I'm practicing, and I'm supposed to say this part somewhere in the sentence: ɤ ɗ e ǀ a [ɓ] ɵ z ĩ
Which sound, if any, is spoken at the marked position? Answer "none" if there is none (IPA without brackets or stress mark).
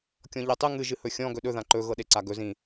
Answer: ɡ